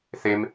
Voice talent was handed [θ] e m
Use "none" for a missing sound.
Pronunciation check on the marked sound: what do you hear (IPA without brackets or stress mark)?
θ